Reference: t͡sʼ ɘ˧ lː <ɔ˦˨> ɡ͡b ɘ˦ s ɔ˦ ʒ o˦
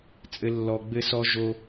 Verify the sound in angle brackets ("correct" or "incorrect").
incorrect